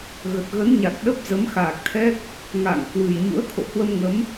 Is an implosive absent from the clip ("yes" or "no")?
no